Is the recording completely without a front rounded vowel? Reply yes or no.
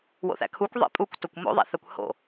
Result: yes